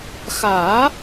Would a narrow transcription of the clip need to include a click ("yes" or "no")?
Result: no